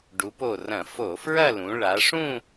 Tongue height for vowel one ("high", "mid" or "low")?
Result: high